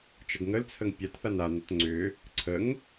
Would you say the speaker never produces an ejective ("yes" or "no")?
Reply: yes